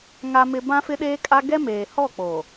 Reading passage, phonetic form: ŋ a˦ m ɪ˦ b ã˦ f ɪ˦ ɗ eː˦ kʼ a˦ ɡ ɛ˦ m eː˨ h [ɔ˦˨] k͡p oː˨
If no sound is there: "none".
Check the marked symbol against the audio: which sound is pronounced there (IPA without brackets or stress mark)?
ɔ˦˨